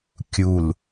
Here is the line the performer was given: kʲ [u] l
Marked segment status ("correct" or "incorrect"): correct